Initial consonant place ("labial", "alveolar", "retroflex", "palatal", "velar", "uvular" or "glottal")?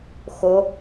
velar